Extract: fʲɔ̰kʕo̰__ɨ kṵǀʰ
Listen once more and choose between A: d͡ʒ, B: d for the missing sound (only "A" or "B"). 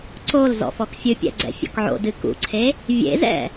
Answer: B